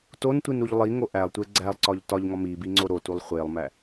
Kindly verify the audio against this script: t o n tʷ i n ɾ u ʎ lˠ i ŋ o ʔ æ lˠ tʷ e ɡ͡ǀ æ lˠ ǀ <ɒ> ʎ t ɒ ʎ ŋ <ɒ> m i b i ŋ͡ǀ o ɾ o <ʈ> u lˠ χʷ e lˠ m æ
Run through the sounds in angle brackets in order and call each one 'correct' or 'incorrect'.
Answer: correct, correct, incorrect: t

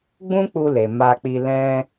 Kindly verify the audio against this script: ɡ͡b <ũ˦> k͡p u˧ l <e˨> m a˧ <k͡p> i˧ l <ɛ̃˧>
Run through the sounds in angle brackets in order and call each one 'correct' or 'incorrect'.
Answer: correct, correct, correct, correct

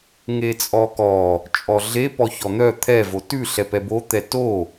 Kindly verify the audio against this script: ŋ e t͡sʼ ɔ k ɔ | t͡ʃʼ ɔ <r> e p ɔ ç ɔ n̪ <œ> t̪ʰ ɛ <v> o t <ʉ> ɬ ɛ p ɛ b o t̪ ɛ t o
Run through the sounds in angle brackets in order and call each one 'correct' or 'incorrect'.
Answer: incorrect: ɮ, correct, correct, correct

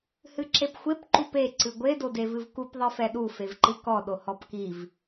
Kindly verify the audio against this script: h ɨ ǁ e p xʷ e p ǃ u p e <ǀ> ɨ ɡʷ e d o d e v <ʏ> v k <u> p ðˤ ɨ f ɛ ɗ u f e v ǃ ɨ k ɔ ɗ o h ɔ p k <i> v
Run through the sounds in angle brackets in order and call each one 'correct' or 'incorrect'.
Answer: correct, incorrect: ɨ, correct, correct

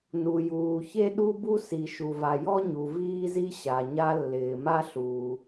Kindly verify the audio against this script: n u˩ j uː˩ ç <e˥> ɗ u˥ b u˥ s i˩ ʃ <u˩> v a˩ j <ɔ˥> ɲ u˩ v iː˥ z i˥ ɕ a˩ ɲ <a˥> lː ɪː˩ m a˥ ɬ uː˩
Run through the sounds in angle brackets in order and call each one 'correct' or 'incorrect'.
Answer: correct, correct, correct, correct

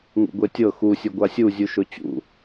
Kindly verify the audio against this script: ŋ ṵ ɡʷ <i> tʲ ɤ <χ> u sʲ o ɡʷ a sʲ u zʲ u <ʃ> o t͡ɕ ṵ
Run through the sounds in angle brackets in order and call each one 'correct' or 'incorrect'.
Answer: incorrect: e, incorrect: x, correct

